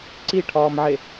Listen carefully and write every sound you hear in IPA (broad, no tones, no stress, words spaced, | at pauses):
ǀiʈʰɒːmʕe